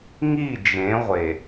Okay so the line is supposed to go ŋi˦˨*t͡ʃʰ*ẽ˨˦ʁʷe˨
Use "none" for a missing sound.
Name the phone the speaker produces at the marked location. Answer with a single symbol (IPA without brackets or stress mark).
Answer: d͡ʒ